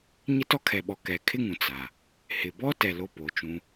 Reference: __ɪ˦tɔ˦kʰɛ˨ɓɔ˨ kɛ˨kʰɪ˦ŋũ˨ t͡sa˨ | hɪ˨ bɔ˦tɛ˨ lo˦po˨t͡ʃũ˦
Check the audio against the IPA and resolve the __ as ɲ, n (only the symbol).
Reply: ɲ